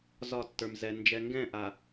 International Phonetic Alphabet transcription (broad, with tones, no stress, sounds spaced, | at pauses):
z ɒ˦˨ tː ə˞˨ m z ɛ˨ n d͡ʒ ɛ˨ ŋ ɡ ɛ̃˦˨ ʔ a˨